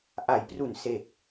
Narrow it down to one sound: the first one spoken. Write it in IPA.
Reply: ʔ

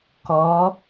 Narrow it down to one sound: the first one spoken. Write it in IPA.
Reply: k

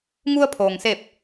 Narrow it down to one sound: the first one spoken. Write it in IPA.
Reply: ŋ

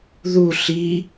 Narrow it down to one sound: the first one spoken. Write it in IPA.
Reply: ð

